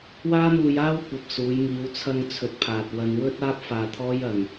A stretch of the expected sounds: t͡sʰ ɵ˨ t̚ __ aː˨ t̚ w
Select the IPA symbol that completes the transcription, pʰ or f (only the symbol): pʰ